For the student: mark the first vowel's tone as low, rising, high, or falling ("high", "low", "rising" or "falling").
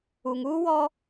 low